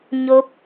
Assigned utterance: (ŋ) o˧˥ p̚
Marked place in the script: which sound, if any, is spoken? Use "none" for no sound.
ɲ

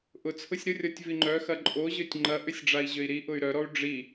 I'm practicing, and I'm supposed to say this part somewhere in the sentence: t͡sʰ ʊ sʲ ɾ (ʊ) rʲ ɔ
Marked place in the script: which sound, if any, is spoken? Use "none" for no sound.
ʊ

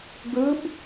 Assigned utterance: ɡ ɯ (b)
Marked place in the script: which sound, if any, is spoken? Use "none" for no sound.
b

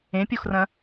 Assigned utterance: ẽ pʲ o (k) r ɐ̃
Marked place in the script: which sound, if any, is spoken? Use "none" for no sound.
x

